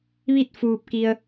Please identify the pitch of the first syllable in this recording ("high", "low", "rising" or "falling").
falling